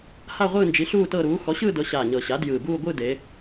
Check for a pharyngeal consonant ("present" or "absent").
absent